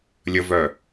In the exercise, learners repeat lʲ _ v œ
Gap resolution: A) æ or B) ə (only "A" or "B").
B